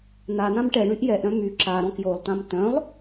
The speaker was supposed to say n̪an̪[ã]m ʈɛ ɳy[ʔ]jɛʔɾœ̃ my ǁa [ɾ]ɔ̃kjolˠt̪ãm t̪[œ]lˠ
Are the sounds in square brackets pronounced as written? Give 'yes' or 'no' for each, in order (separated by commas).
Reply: yes, yes, yes, no